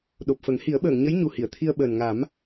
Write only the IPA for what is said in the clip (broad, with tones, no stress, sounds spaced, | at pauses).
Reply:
ɗ o˨˩ p̚ f ə˨˩˦ ŋ h i˨˩˦ ə̯ ɓ əː˨˩˨ ŋ ɲ ə˧˥ j ɲ u˨˩ h i˨˩˨ ə̯ t̪ʰ i˧ ə̯ ɓ əː˨˩ n ŋ a˨˩˦ m